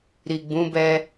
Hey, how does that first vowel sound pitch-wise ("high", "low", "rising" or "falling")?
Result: low